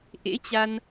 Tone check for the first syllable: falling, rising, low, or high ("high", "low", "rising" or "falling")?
rising